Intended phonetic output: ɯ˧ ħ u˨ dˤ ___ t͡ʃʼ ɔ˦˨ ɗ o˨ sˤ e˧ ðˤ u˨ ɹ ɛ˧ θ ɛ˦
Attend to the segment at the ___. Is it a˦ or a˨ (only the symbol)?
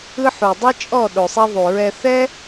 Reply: a˦